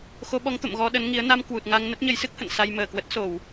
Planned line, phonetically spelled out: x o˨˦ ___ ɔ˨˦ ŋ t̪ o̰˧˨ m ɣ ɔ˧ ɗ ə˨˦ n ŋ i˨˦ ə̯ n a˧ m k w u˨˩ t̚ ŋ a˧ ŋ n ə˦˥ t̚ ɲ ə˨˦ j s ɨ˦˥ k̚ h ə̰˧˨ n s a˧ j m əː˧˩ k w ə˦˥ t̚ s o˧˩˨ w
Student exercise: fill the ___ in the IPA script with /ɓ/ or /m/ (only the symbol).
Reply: ɓ